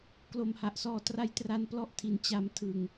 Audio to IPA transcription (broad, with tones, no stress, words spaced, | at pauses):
klo˨˩mha˨˩ʔsɔː˧ tra˧jtra˧n plɔ˥˩ʔtʰi˧n t͡ɕa˧m tʰɯ˧ŋ